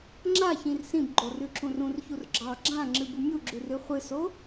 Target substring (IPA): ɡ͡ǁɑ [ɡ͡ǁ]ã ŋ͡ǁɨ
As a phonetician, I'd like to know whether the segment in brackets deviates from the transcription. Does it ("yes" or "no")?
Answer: no